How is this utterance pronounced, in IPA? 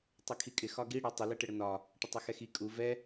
tˤɛkʰikʼɪ xɒɡi ɽɛtˤɪ lɛʈɪɽənɒ | ʈətˤɛxɛxi kʼu vɛ

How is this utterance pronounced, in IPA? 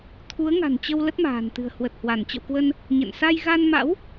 t̪ʰu˨˦ə̯ŋa̤˨˩nt͡ɕə˧w lə˦˥t̚ma̤ː˨˩nt̪ɨ̤˨˩ə̯ hwə˨˩t̚hwa˧˩n t͡ɕə̰˧˨wkwə˧n | ɲə̰˧˨n sa˧jɣa˧nma̰˧˥w

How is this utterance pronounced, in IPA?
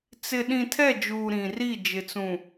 t͡sɪ˨ɗĩ˨ tʰɛ˦˨d͡ʒuː˨ ɾĩ˨ri˦˨ d͡ʒɪ˨t͡sũ˨

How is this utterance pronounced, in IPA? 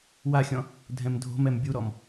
waxʲɔ̃ | dʱɛ̃mdʱo̤mɛm bʲuɾɔm

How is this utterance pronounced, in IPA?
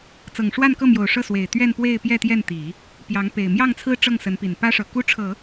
t͡sɤ˨˩ŋʂwa˥˧nkɤ˥˩mjo˨˩ʊ̯ ʂɤ˥˩swe˨˩ɪ̯ t̪ɥɛ˥˧npwe˥˧ɪ̯ pjɛ˥˧t̪jɛ˥˩nt̪i˨˩˦ | pjɑ˧˥ŋpe˨˩ɪ̯ mjɑ˥˩ŋt͡sʰɹ̩˥ ʈ͡ʂɤ˥˩ŋsə˧˥npi˨˩n pä˥ʂɤ˨˩ ku˥ʈ͡ʂʰɤ˨˩˦

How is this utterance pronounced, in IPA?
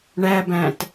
ɳæbæ̃t

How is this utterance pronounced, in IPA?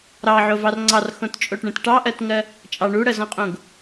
ɾɑʕovɑr ŋ͡ǀɑrxõtt͡ʃʼoʈɳẽt ʈɑʔɜtŋɜ | t͡ʃʼɑ ɳuɽɜzɔ̃qʼõɡ

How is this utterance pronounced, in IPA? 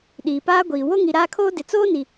ɗiː˨paː˦ɡʷiː˨ wo˦ŋi˨ɾaː˦kʰoː˦ dɪ˨t͡soː˦ni˨

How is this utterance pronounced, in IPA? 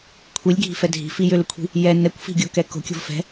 kʷʰilʲɡʱi̤fɛ dʱi̤fi jʏlʏkʷʰi̤ | jɛ nɛkʷfi̤ɡʲokɛ ko̤kʲo̤v fɛ̤

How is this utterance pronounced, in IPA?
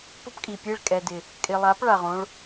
pʊ˦pkʼi˨pʲe˦˨ɭ kʼɛ˨dɪ˨ | kʼɪ˨lˠa˨˦p ɭa˨ʁõ˦ɭ

